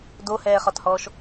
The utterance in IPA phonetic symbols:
dohɛːχɒthɔːʃ

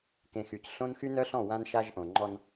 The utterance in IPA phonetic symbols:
kẽ˨xy˨c ɬõ˦nxy˦nœ˦ɬɔ̃˦˨ wã˦nʃa˦ʒʔõ˨ ŋ͡ǃɔ˦n

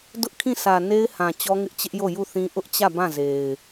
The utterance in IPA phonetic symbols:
dʊ˦ʔkʰĩ˦˨sʰä˨ ne˦ɪ̯hã˨ t͡ɕɔ˦ŋɪ˦ʔt͡ɕɪ˦ʔjo˦˨ ju˦˨θĩ˦ ʔʊ˦ʔt͡ɕä˦˨ bã˦˨ze˨ɪ̯

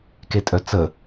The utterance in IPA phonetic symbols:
ketʼœt͡sə

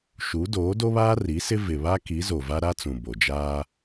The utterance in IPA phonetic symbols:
ʃu˨˦ doː˨˦ do˦βaː˦ ri˨˦sɪ˦ vɪ˨βa˦ ki˨˦zo˨va˦ ɾa˦t͡sũ˨ bo˨d͡ʒaː˦

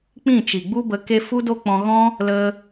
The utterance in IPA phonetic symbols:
k͡pĩ˦˨t͡ʃi˨ɡ͡bu˦bə˧ ke˧ fu˦do˦k͡pɔ̃˧ɣɔ̃˦ | lə˧

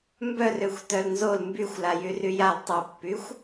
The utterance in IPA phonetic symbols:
mbœrøxʷ tœlnzol mbyxʷ lajyryjal tˤopːyxʷ

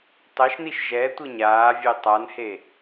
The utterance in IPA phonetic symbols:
tˤɛʃniʃ ʒɛtʷɯ ɲaːvʲe tˤanhe

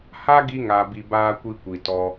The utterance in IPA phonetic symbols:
ha˦ɡi˧ŋa˨bi˨ baː˧kʷi˧kʷi˨ tɔ˧

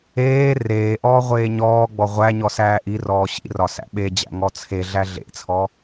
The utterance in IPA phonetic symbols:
eː reːʔɔː ʁʷeːɲɔːɡ͡bɔ ʁʷæ ɲɔsæːʔirɔː ɕḭrɒ sæ̰ɓed͡ʑæ̰ ŋɔt͡sʰeɮæ ɮḛt͡sʰɔ

